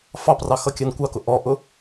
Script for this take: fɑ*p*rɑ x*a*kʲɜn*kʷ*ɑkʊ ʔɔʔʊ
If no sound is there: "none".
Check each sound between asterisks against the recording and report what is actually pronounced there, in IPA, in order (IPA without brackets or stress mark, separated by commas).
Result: p, ʌ, kʷ